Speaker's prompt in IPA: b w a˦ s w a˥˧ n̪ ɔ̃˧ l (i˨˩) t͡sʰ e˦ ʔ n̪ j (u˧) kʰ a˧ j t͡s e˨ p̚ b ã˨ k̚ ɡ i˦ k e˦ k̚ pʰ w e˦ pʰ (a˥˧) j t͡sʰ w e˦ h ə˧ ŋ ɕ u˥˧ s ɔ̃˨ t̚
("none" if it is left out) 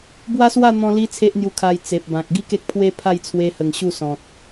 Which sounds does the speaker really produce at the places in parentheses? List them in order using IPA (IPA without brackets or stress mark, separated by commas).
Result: i˦, u˧, a˥˧